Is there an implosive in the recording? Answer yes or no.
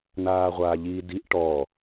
no